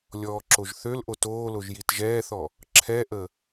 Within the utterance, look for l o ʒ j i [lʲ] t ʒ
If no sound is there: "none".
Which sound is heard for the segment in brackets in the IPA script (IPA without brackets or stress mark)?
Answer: none